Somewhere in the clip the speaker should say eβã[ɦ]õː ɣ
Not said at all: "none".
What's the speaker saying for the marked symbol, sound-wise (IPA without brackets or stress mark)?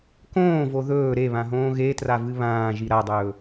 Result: ɦ